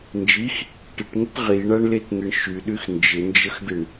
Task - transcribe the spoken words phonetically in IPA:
n d͡ʒ i x | ʈ ɪ ʈ ŋ ə t ʁ i ɳ a ɳ l e t n̪ ɪ ɳ ʃ y ɗ y x n d͡ʒ ɪ n d͡ʒ ə x d̪ ɪ ɳ

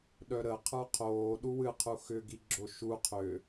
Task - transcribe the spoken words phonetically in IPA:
ɗ œ ɾ ə qʰ ə˞ qʰ oː ɗ u w ɨ qʰ u x ʏ ɡ i ɡ͡ǁ o ʃ u qʰ ʏ

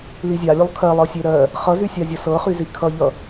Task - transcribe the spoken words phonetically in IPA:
l i zʲ a lʲ o lˠ kʰ ɜ lˠ ɤ sʲ e ɾ ɜ | χ ʌ z y sʲ a zʲ ʌ s ɤ χ y z i kʰ ʌ ʎ ʌ

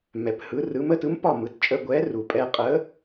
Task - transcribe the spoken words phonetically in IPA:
m ɛ˩ p h ɯ˩˧ r ɯ˩˧ m ə˧˥˧ t ɯ˨˥ m p ɒ˥˩ m ɯ˩ t t͡ʃʼ ə˧˥˧ ɡʷ ɛ˨˥ r u˩ pʼ ɛ˧ qʼ ə˨˥

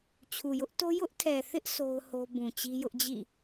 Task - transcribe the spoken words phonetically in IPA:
t͡ɕʰ u˨ j ʊ˦ ʔ t o˦ j ʊ˦ ʔ tʰ ɛ˨ θ ɪ˦ ʔ s o˦ ʊ̯ h o˦ b ũ˨ t͡ɕ i˦ j ʊ˦ ʔ d͡ʑ ḭ˦˨

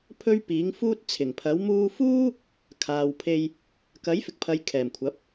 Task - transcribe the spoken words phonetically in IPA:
pʰ ɵ˥ ɥ p iː˨˥ ŋ f uː˥ t̚ t͡sʰ ɪ˨˩ ŋ pʰ ɐ˨˥ w m uː˧ f uː˥ | kʰ aː˨ w pʰ e˧ j | k ɐ˨˥ j f ɪ˨ k̚ pʰ ɐ˨˧ j kʰ ɛː˨˩ m kʷʰ ɐ˨˥ p̚

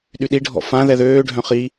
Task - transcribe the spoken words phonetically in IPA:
ɗ y ɗ i ɖʱ ɔ̰ f ã ð ɛ ð øː ɖʱ œ̃ χ i

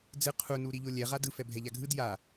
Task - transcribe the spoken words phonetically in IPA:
d͡z ɯ qʰ u n u ɾ i ʎ o lʲ ɛ ʁ a d ɯ f ɛ bʱ ɛ ʎ a ɡʱ ɯ d j a

